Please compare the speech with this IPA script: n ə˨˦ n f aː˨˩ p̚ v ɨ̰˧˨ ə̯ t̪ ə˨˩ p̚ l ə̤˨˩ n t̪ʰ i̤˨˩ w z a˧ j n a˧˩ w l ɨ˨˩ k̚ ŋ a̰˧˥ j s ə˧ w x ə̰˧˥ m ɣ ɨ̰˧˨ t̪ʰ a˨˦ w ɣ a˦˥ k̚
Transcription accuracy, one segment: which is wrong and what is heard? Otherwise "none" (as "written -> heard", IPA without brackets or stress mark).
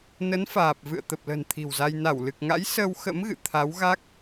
none